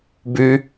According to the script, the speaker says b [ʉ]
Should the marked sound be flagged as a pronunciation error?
no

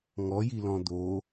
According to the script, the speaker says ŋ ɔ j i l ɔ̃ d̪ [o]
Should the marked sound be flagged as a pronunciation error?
no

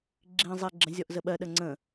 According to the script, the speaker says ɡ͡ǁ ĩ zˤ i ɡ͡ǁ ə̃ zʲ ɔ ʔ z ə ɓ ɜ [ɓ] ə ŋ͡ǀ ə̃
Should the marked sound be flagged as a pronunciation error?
yes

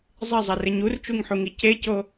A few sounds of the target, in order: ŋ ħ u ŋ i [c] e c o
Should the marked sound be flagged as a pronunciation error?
no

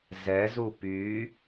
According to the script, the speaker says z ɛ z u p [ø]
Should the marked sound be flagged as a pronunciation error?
yes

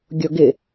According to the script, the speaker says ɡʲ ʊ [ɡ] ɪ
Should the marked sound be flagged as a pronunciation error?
no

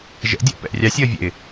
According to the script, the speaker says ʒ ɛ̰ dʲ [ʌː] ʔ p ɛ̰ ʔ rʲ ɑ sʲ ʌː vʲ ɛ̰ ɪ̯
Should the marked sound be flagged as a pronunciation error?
yes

